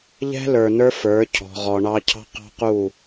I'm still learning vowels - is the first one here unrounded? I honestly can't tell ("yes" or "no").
yes